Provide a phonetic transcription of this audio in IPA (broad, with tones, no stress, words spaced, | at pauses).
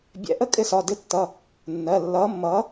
bʲɛ̰˨˥ ʔə˥˨kʼɪ˥˨sɒ˩˧˩ dɪ˨˥tːʌ˩˧˩ | nːɜ˩˧˩lːʌː˨˥mːʌː˨˥